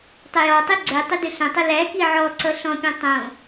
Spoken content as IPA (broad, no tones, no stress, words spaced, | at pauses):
tˤəjɔtˤi ɡ͡ǀɛ tˤʏdʏɬə̃tˤə læki ʕɔǀʌ ɬɔ̃pʲɔ̃ tˤõ